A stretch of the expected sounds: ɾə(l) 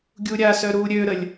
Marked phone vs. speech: incorrect: lʲ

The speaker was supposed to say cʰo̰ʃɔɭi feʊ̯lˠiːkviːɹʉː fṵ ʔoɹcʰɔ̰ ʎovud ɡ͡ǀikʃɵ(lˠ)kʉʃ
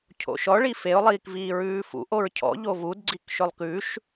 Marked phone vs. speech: correct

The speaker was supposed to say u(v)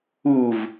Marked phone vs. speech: correct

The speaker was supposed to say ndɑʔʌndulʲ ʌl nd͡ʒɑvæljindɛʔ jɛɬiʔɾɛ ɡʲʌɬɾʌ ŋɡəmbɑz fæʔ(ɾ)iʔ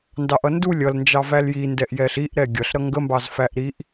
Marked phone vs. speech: correct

